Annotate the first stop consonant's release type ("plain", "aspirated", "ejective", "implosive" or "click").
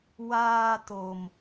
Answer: plain